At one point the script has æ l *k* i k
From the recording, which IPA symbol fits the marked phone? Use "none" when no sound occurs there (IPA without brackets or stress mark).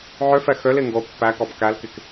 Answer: k